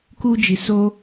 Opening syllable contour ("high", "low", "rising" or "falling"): high